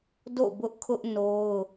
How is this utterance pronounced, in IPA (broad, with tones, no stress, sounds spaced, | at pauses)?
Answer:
d o̰˦˨ b ʊ˦ ʔ kʰ ʊ˦ ʔ n o˦ ʊ̯